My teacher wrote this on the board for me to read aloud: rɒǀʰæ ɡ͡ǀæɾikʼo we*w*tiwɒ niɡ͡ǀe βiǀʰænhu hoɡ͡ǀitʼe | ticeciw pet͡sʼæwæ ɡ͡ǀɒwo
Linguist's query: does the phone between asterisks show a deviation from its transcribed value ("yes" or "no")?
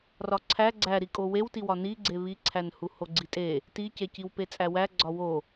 no